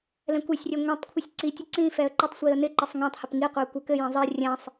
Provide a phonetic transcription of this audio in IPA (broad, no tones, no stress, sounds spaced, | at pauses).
l ɛ̃ kʷ e sʲ rʲ ɛ ŋʷ ɛ̃ tˤ kʷʰ ə sʲ ǀ i tʲ ə ǀ ĩ f ɛ ə̯ ǃ ɪ tˤ sʷ i ə̯ n ɪ ǃ ɘ sˤ ŋ ɛ̃ tˤ h ə p ŋ i qʷ e ə̯ kʷ ə˞ k ɘ j ẽ zˤ e rʲ ɛ̃ sˤ